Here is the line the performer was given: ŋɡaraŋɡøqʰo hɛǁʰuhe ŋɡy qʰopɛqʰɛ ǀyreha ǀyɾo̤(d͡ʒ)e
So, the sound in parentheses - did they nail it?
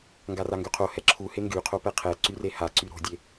no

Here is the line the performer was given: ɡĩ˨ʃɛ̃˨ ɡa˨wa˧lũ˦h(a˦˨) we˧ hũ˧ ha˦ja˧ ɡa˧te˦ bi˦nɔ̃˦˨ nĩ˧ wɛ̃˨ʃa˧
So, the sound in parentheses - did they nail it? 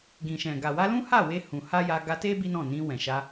yes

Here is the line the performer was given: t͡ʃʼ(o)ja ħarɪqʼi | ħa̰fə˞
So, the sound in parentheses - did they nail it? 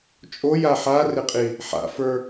yes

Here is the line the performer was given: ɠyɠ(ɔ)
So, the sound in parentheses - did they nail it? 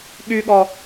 yes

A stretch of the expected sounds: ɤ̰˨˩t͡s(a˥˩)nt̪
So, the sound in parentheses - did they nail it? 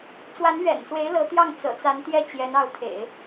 no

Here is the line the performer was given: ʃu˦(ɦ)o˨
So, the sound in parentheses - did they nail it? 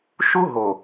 yes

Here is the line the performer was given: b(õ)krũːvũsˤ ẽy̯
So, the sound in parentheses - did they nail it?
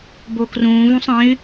no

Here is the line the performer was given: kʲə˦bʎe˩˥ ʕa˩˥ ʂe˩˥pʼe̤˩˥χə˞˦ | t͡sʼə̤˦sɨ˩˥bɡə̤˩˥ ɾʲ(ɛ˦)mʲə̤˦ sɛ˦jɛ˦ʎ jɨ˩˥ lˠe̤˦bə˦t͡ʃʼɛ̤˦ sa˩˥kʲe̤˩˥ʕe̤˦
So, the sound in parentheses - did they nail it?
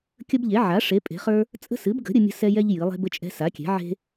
no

